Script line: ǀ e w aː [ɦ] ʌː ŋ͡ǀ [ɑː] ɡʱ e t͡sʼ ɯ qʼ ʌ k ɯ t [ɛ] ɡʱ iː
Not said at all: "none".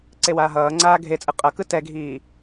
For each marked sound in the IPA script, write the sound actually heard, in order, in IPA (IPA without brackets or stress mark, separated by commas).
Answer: ɦ, aː, ɛ